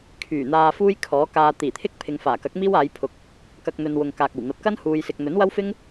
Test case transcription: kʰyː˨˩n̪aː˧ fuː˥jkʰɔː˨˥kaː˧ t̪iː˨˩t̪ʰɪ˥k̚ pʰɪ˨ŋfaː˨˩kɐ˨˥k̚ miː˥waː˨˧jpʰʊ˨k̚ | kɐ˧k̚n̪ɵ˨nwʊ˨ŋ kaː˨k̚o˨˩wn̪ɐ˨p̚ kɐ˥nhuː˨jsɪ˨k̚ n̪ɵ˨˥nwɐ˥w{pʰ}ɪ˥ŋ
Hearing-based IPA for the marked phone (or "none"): f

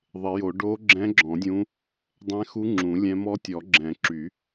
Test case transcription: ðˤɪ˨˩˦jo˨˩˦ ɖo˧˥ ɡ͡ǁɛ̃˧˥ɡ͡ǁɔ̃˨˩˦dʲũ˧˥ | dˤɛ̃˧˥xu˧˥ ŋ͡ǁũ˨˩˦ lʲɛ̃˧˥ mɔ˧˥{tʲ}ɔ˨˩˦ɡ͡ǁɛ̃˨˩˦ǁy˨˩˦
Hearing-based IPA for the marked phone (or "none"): tʲ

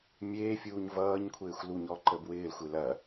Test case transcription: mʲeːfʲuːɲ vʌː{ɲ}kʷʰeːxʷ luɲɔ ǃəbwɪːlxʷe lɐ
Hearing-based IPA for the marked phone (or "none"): ɲ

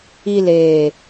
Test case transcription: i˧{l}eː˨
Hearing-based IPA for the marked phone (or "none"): l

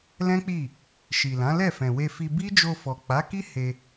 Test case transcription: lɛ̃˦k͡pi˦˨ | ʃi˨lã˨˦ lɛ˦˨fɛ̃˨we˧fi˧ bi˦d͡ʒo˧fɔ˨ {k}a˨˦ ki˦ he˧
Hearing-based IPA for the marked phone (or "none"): k͡p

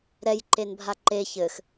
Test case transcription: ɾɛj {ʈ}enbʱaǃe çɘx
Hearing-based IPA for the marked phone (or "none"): ǃ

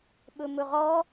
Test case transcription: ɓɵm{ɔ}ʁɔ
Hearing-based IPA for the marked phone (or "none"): ɵ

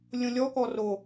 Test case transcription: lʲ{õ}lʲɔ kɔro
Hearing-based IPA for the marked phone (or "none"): õ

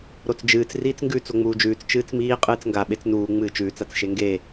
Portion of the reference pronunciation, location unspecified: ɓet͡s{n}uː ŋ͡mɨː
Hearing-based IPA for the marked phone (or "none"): n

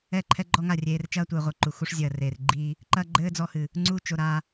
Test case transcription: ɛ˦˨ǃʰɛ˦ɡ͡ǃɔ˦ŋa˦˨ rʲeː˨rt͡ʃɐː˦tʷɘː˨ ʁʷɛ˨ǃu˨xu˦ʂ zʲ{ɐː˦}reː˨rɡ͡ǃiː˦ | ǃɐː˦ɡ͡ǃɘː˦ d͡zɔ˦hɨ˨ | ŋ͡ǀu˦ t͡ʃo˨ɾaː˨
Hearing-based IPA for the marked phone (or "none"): ɐː˨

